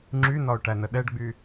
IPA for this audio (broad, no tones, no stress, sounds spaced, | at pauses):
ŋ͡ǁ y n ɒ ʊ̯ ʈ æ n ə ɗ ɛ ɖ ɡ͡b y